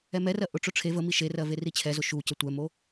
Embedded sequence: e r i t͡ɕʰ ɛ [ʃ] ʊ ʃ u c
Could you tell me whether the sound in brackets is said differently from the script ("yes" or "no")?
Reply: yes